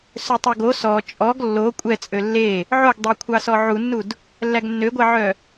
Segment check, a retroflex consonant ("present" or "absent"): absent